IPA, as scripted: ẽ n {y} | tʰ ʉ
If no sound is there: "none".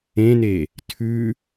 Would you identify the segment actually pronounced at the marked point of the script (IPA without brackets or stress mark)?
e